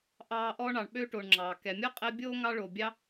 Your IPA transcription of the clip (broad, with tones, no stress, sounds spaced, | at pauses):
ʔ ɑː˦ ʔ ɔ˥ ɳ ɑ˨ ɳ ɓ ø˥ ʈ o˨ ɳ ŋ͡ǁ ɑː˩ k ɛ˩ mʲ ɔ˥ qʼ ɛ˦ bʲ oː˥ ŋ ɑ˦ ɭ o˩ bʲ ɑ˦